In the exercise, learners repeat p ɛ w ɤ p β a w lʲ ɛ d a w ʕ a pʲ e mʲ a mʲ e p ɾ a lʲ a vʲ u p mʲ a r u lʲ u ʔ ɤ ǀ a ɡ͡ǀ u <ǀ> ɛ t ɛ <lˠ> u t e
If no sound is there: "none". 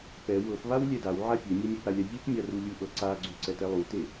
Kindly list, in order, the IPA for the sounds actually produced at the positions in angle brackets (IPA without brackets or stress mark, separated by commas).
ǀ, lˠ